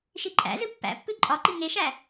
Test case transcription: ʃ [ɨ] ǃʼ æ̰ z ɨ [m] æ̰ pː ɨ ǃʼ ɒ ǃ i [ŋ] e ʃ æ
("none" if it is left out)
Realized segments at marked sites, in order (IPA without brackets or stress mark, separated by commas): i, pː, ŋ